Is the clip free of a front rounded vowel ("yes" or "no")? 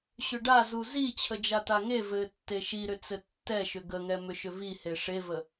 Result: no